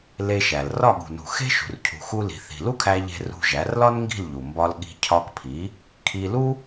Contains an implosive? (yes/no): yes